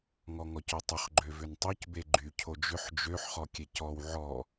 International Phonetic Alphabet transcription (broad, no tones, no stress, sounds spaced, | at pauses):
ŋ ɔ ŋ ɔ c ø tˤ ʏ χ ɡ͡ǃ ø v ʏ n tˤ o c b e ɡ͡ǃ y cʰ o d͡ʒ ʏ ħ d͡ʒ ø ħ χ ɔ kʲ e c ɔ w ʕ ɔ